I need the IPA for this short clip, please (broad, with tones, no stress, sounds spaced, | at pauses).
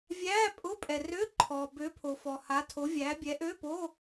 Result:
vʲ æː˧˥˧ pʼ ʊ˧˥˧ pʼ ɛ˩ r ø˧˥˧ ǃʰ ɔː˩ b ø˨˥ pʰ o˩ f ɔ˩ h a˨˥ tʰ o˨˥ vʲ æː˨˥ bʲ ɛ˨˥ ʔ ø˧˥˧ p oː˧˥˧